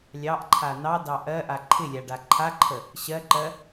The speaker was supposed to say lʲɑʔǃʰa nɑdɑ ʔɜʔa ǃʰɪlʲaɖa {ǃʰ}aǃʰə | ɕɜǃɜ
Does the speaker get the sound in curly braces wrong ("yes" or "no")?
no